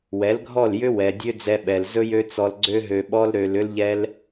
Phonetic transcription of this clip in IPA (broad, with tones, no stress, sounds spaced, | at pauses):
w ɛ˨˦ l ɡʱ ɔ˦˨ l j ʏ˦ w ɛ˨ dʲ ø˦ d͡z ɛ˧ ɓ ɛ˨ l z ɵ˦ j ø˦ t͡s ɔ˧ l ɡ͡ǀ ø˦ ɦ ø˧ ɓ ɔ˦ l ɾ ø˧ l ʏ˦ l ʎ ɛ˦ l